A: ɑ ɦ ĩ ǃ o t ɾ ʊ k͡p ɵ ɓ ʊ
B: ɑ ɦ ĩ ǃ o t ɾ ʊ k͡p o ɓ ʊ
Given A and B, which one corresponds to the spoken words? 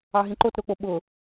B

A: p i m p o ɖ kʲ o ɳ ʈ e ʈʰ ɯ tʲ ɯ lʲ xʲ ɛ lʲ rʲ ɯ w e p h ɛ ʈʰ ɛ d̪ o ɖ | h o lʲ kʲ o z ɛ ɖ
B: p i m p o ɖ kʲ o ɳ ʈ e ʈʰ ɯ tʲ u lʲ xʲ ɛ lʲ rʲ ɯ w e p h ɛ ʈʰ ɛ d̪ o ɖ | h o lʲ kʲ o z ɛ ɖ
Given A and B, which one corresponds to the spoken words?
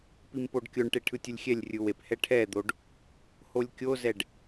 A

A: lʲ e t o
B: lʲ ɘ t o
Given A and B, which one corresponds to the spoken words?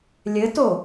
B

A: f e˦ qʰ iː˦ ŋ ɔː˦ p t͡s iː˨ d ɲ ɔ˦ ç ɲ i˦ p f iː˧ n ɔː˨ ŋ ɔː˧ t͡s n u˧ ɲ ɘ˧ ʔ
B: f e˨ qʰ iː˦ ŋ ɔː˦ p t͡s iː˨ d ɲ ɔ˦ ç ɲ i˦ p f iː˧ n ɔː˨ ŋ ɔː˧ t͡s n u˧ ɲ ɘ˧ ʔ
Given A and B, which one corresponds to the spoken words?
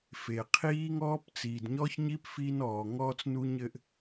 B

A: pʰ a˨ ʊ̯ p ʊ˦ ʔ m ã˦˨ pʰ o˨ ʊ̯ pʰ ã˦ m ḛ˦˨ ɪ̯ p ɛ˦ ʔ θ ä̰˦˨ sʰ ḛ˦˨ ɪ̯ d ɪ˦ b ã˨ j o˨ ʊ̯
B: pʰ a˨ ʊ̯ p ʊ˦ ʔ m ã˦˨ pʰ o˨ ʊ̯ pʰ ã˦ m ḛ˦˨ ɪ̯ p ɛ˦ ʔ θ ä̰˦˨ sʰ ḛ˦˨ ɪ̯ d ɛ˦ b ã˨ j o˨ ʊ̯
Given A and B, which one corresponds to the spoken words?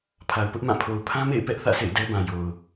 B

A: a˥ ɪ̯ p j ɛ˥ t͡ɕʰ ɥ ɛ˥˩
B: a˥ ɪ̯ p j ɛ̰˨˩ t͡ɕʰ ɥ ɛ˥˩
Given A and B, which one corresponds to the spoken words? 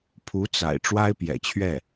B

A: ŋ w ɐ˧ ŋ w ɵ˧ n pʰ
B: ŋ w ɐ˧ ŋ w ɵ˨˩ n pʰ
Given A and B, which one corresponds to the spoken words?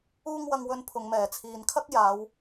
A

